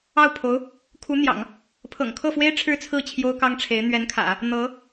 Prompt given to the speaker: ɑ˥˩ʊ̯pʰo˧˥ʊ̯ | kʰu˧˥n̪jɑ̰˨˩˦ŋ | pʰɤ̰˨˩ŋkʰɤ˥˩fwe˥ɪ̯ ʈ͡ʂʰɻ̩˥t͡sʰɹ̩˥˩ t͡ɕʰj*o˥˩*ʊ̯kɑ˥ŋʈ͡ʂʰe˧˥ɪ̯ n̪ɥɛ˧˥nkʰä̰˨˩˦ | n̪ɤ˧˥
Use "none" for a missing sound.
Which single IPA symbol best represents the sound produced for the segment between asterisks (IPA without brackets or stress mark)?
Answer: o˥